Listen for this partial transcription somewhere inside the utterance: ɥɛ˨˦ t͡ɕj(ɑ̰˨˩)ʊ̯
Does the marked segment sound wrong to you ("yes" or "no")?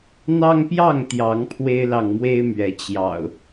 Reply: no